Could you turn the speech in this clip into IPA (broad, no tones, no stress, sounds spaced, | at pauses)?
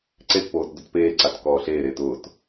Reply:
ǀ e t p oː t d ʊ t p eː ǀ a t k ɔː ɬ eː ɾ eː t ʊː t